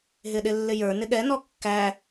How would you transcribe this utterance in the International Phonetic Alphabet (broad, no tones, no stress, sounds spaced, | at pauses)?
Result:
ɦ ɪ ɗ ɪ lː ɪ j ə˞ n ɪ ɠ ɛ n ɔ kː æ